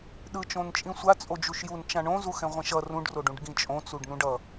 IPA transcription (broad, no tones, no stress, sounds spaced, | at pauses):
ɗ ɯ t͡ʃ õ n t͡ʃʼ ĩ sʷ a t͡sʼ o d͡ʒ u ʃ j u n t͡ʃ ã ɳ õ z u x ɛ̃ ʁʷ ɛ̃ ʃ ʌ r ũ ɖ r o ɖ ũ ɖ ɡ ĩ t͡ʃʼ õ t͡s u ɖ n ũ ɖ ʌ